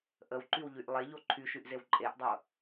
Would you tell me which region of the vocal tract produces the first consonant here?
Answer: throat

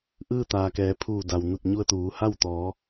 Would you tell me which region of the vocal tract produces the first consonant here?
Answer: throat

